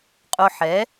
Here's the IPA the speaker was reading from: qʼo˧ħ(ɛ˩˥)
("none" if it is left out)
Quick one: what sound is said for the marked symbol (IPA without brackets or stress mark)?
ɛ˩˥